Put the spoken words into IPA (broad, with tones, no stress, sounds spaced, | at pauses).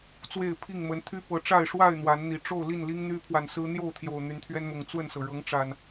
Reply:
t͡s w e˥˨ ɪ̯ pʰ i˥˨ ŋ m ə˨˦ n t̪ʰ y˦ p ɤ˨˦ ʈ͡ʂ a˥˨ ɪ̯ ʂ w a˥˨ ɪ̯ n̪ w a˨˦ n n̪ i˨˩ ʈ͡ʂ o˥˨ ʊ̯ l i˥˨ n l i˦ ŋ n̪ y˦ pʰ w a˨ n s ɹ̩˦ n̪ j o˥˨ ʊ̯ t̪ʰ j o˨˩ ʊ̯ n̪ y˨˦ n t̪ʰ ɥ ɛ˦ n m ʊ˨˩ ŋ t͡s w ə˥˨ n s ɤ˩ ɻ ɤ˨˦ ŋ ʈ͡ʂ a˨˩ n